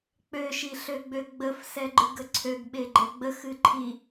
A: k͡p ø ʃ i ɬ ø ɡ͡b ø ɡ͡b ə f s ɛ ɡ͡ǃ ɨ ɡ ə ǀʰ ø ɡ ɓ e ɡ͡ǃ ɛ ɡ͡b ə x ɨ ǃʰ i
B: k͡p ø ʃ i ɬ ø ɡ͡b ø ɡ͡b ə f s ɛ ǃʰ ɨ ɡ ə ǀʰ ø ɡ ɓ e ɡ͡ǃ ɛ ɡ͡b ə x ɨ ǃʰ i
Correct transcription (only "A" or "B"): A